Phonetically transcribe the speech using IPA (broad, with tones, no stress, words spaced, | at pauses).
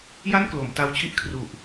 ja˥˩nklo˩˦mta˧wt͡ɕʰi˥˩ʔ kʰru˨˩ʔ